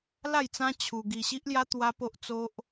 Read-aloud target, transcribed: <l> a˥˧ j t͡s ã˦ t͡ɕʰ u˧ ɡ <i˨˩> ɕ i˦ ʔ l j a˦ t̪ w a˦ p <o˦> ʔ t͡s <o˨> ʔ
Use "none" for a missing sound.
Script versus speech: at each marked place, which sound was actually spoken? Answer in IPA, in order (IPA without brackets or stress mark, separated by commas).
l, i˧, o˦, o˦